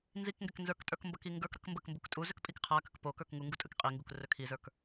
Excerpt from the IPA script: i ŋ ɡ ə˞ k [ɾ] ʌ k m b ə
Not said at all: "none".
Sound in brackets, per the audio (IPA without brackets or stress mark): ɾ